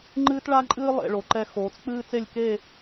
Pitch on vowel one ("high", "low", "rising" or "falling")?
high